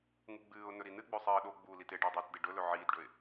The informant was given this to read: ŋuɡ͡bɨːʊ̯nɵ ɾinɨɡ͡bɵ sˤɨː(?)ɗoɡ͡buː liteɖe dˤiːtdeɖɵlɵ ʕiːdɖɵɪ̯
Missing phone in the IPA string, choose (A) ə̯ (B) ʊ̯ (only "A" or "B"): A